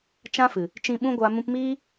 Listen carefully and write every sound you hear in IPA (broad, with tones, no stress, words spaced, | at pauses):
t͡ʃã˦fɨ˨ | t͡ʃĩ˧ɓũ˦ɡʷa˧ mũ˧pmiː˦